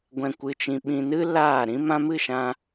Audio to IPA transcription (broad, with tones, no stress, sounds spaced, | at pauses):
ɡʷ ɛ̃˧ kʷ ɨ˧ t͡ʃ ĩ˧ ɓ ĩ˧ n ɨ˦ l aː˦˨ ɾ ĩ˦ m ã˦ m ɨ˦˨ ʃ ã˧